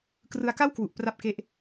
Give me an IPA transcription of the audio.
krɯ˧a̯ka˥˩wkwu˨˩ʔ pra˦˥p̚ke˦˥ʔ

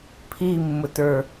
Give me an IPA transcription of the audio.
pʰimːʊtə˞

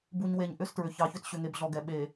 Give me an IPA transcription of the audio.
bu˨ɲwe˨ɲ ʔʏ˦stɹʏ˨ çɑ˨çʏ˦t ɕʏ˨ŋe˨bɮɔ˨ɡɛ˨ ɓe˨

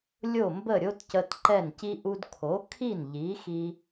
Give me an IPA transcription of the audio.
lʲo˥˩mbə˥˩ɾʲo˥tcə˧t ǃɛ˥˩nci˥ ʔu˧dkʰo˩˥ kʰi˥˩n ʎi˩˥xi˧

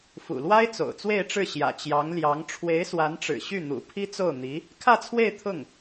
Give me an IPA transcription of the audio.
fṵ˨˩lwa˥ɪ̯ t͡so̰˨˩ʊ̯t͡swe˥˧ɪ̯ʈ͡ʂɻ̩˥˩ ɕjä̰˨˩t͡ɕjɑ˧˥ŋ ljɑ˧˥ŋ ʈ͡ʂʰwe˧˥ɪ̯swa˧˥nʈ͡ʂɻ̩˨˩ ɕy˥˩n̪ṵ˨˩ pʰi˥t͡so˥˩ʊ̯n̪i˧˥ | kʰä˥˧t͡sʰwe˥˧ɪ̯ t̪ʰʊ˥˩ŋ

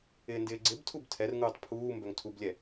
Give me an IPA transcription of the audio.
ɪːndɪːɡ͡ǀɪbtʰub tʰɛrŋuːtˤ pʰuː mbœŋtʰublʲɛ

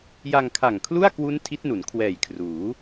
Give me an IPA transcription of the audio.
ja˧ŋkʰa˨˩ŋkʰlu˥˩a̯kwu˦˥n tʰi˦˥t̚nu˩˦n kʰwɛː˨˩jkʰruː˩˦

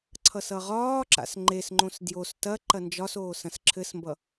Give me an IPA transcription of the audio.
ǀʰʌsʌʁɒːǁa̰s ŋ͡ǃesŋ͡ǃõs djos tɐ ǃɐnd͡ʒɒsoː sɐ̃sǁʰɘsmbʌ

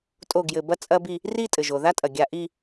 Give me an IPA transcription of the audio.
tʼo˥˩ɡjɘ˧˩bɐ˥ t͡sʼɐ˥bi˥˧ | ri˥˧ tʼɘ˩ʒo˩ða˥tʼɐ˩ ɡʲa˧˩ ʔi˥˧

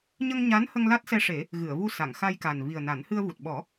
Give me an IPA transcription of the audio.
ɲə˧ŋɲa˧˥nhə˧ŋ la˦˥t̚sɛ˧ʂe˨˩˦ | ɣɨ˨˩˨ə̯vu˧ sa˨˩˨ŋxa˧jka˨˩n vi˨˩ə̯na˨˩˦nhɨ˧ə̯vu˨˩t̚ ɓɔ˨˩˦

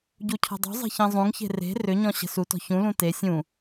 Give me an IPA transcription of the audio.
ɟucʰɔ̤dˤṳzˤe̤ çĩzˤũŋçe̤ re̤ rʏɲɔ̃ ɕə̤sutɔ̤ çũlũ te sʲũ

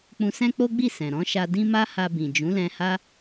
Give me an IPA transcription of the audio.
k͡pũ˧sɛ̃˦k͡po˦ɡ͡bi˦˨ sɛ̃˨ɾɔ̃˨˦ʃa˧ dĩ˦ma˦ha˧bĩ˨ d͡ʒũ˨˦lɛ̃˧ha˦

